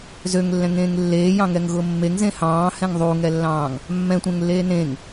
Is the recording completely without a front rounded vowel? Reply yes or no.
no